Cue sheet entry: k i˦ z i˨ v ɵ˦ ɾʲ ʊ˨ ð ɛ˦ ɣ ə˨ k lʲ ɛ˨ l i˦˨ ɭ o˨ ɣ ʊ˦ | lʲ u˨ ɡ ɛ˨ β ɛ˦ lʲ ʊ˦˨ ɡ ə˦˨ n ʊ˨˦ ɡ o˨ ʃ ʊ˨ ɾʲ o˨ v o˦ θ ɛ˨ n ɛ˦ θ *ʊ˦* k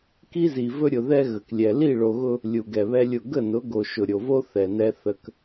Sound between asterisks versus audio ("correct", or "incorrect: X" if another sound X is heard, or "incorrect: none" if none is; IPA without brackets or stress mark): incorrect: ə˦